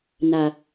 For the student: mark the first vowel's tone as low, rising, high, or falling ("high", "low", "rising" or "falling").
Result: low